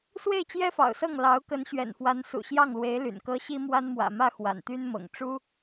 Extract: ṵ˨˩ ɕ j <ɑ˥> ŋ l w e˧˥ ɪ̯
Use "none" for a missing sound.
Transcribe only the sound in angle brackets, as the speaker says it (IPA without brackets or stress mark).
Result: ɑ˥˩